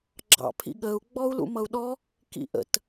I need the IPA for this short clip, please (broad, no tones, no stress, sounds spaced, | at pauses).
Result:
ɡ͡ǁ ɑ̰ pʰ ḭ ɠ ə u̯ ɡ͡b ɔ u̯ l ṵ m ʌ u̯ ɗ ɔ | k ḭ ʔ ə̰ t